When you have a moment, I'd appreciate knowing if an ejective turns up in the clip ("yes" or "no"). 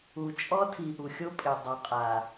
yes